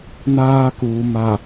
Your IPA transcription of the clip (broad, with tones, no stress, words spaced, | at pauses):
naː˦kuː˨ma˨